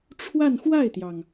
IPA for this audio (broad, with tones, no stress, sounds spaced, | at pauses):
ʈ͡ʂʰ w a˥˧ n x w a˥˩ ɪ̯ t̪ j ɑ˩ ŋ